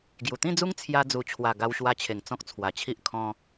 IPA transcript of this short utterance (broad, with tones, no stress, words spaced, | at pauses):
ɡju˨˩t̪ĩ˥˧d͡zu˦ŋ t͡sʰja˧d͡zu˨˩t͡ɕʰwa˨˩ ɡa˧wɕwa˧t͡ɕʰe˨˩ŋ t͡sɔ̃˦k̚t͡sʰwa˨˩t͡ɕʰi˦ʔ kʰɔ̃˧